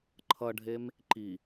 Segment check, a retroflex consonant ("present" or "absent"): present